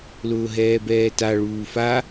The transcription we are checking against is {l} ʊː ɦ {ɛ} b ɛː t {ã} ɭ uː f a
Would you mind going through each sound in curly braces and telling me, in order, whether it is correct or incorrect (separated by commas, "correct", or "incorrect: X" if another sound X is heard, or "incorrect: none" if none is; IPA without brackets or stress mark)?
correct, incorrect: ɛː, incorrect: a